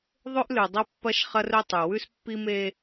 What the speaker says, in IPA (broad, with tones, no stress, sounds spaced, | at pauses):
ðˤ ɵ˦ ʔ l ʉ˨ dˤ ɐ˦ pː ɐ˦ ʃ χ ɐ˦ r ɵ˦ tˤ ʉ˨ w ʉ˦ s pː i˦ m e˦